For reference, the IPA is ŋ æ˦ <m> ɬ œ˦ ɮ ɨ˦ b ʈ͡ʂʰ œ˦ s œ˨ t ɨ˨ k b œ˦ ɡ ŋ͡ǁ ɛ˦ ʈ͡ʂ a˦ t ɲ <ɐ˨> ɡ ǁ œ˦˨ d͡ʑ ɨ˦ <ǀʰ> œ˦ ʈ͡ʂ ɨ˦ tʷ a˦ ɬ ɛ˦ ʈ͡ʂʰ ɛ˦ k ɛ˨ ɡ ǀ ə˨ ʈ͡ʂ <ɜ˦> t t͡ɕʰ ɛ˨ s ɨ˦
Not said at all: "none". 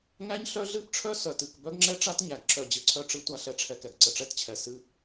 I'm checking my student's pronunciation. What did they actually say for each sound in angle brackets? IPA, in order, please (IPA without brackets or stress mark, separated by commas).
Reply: ɲ, æ˨, ǀʰ, ɛ˦